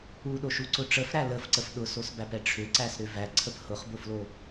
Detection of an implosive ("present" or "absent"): present